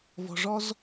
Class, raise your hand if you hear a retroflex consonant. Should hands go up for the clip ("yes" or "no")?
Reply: yes